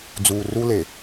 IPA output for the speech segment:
d͡z uː˨ r u˦ l e˨

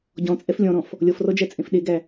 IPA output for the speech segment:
ɟ ɔ̃ t͡sʼ ɛ f lʲ ɔ̃ ɾ ɔ̃ f | lʲ ɔ f r ɔ d͡ʒ æ t͡sʼ ẽ f ɗ e ɡ æ

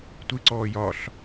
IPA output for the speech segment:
tʷ ɨ ǀ ɔː j ɒ ɬ

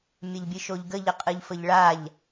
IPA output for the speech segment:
mʲ ə ʎ bʲ ɨ ʃ o ʎ ɡ ə ʎ ə qʼ ɨ ʎ f ə ʎ ɭ a ʎ

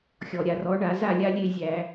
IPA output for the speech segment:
xʲ ɔ˩ ɾʲ a˩ r ɔ˨˦ ɳ a˧˩˧ z a˥˨ lʲ a˦ lʲ e˥˨ zʲ æ˧˩˧

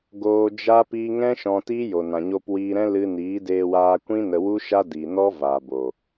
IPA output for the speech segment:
ɡ oː˧ d͡ʒ a˦ p iː˧ ŋ ɛ̃˦ ʃ ɔ̃˧ t iː˦ j o˨ n ã˨ ɲ o˧ p w iː˧ ɾ ɛ̃˦ l ɨ˧ n iː˨˦ d eː˧ w aː˧ kʷ ĩ˦ n ə˧ w u˦ ʃ a˦ d i˨ n ɔ˦ v a˨ b o˨

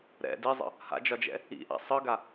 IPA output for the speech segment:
ɾ ɛ̰ d i zˤ ə̰ | h a̰ d͡ʒ ɒ d͡ʒ ɛ̰ | ḭ ʔ a̰ sˤ ɯ ɡ a

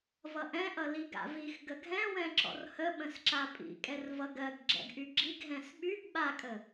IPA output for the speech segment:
v ʌ ʔ ɛ̃ ʔ ʌ l i ɡ a̰ v i x ɡ ə ɡʱ ɛ̃ w ɛ̃ ǁ ɔ̰ r h ə ɓ ə̃ s ǁ a pʼ ḭ kʼ ɛ r v ʌ ɡ ɜ ɡ ɡ͡ǁ ɛ̰ ɡ ʔ y ɡ͡ǁ i ɡ ɦ ɛ̃ s ɓ y ɡ ɓ a kʼ ə

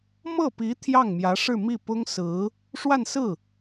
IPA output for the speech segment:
m ɤ˥˩ p i˧˥ t̪ʰ j ɑ˥˩ ŋ m j ä˧˥ ʂ ɻ̩˥˧ m i˥˩ p ʊ˥ ŋ s ɹ̩˧˥ | ʂ w a˥˧ n s ɹ̩˥˩

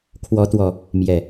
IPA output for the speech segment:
kʰ w ɔ˨˦ t̪ w ɔ˨˩ | m j ɛ˨˩

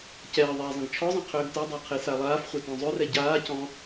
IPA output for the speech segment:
c ɛː ðˤ ɛː zˤ ə̃ ɡ t͡ʃʰ ɔ zˤ ɛ̃ qʰ øː ɡ t ɛ dˤ a qʰ e s a lˠ aː f χʷ ɛ t ɔ̃ zˤ ø r ɛ ɟ aː c ɔ̃

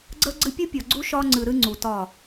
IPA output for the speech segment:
ɡ͡ǀ ə˦ ɡ͡ǀ ɨ˦ pʲ u˦ pʲ ɒ˨ ɡ͡ǀ u˦ ʃ ɒ˦ ŋ͡ǀ ɨ˨ ɾ ɨ˦ ŋ͡ǀ u˨ t ɒ˦˨

